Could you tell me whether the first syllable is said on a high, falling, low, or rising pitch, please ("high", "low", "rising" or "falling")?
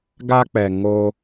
high